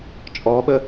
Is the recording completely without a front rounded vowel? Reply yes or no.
yes